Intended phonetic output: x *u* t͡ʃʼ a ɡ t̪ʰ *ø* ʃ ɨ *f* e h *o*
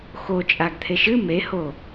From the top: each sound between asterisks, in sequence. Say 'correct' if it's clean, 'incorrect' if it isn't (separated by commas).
incorrect, incorrect, incorrect, correct